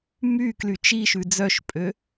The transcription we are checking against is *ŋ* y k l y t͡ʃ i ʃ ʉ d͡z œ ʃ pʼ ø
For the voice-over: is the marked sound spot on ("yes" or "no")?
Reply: no